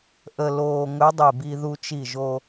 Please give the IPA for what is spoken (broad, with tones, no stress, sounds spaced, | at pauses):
ʔ ə˧ l oː˧ ŋ ɵ˧˥ dˤ i˧˩ b i˧ ð u˧ t͡ʃ i˧˩ ʒ o˧